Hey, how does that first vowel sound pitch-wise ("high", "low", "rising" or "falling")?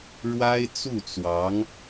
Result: high